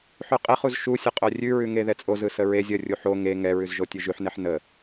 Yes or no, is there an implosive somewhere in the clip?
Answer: no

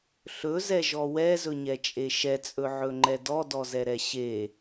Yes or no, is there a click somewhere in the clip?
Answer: yes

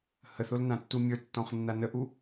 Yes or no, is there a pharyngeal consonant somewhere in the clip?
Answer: no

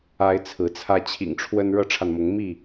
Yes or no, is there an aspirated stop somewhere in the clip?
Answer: yes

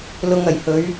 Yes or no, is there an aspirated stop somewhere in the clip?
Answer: no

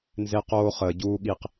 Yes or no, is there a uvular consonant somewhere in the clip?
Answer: yes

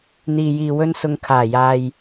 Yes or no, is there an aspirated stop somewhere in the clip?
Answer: yes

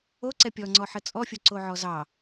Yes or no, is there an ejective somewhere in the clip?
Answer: yes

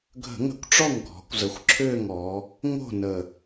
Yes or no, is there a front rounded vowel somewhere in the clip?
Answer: yes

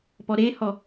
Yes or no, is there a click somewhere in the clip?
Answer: no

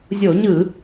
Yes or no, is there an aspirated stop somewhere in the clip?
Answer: no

